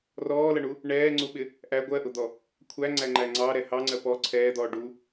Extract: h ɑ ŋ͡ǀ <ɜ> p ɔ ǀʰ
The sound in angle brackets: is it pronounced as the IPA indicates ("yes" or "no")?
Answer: yes